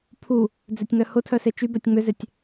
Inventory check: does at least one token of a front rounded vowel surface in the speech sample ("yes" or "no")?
yes